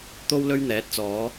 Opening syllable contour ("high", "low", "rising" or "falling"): high